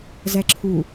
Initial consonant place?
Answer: alveolar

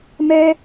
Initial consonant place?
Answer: labial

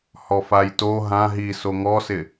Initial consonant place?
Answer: glottal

